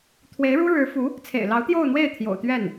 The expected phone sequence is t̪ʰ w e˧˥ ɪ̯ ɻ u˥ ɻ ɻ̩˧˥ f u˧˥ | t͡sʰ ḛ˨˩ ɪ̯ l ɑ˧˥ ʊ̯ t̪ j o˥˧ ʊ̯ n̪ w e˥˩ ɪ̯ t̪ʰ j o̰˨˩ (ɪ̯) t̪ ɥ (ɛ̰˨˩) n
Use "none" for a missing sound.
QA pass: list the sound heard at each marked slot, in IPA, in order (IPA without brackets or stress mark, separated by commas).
ʊ̯, ɛ˥˩